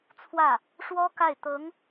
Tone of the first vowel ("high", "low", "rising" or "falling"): falling